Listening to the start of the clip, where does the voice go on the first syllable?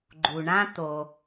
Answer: low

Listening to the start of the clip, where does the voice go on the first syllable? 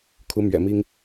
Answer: rising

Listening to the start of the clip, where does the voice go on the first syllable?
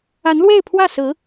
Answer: rising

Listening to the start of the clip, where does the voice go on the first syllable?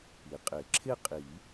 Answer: low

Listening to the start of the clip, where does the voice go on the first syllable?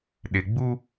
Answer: low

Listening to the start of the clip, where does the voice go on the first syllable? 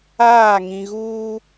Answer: falling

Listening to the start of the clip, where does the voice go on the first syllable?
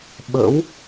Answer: rising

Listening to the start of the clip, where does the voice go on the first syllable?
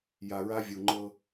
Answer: low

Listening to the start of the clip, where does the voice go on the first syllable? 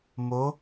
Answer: rising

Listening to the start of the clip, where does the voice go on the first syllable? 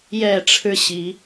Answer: falling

